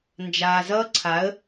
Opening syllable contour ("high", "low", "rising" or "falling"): low